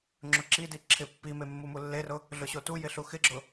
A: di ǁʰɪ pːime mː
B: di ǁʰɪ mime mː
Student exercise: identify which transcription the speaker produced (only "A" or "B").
A